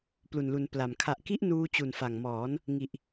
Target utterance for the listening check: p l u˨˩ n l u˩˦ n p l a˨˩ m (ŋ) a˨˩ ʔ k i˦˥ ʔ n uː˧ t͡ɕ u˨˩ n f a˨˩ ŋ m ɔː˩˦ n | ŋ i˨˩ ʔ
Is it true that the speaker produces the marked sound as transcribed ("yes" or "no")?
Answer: no